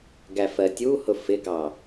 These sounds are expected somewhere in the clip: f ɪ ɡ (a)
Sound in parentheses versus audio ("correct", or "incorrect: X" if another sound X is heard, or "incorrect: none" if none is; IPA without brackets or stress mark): incorrect: ɑ